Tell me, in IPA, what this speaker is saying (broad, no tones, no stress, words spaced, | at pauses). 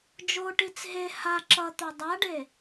d͡ʒoʈit͡s ɦe ha ǁʌt̪o dˤaɖe